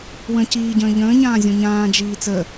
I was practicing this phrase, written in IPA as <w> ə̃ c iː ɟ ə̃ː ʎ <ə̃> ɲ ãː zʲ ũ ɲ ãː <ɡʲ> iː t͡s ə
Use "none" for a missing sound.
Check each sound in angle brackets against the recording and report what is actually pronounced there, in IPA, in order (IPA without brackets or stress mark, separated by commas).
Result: w, ə̃ː, d͡ʒ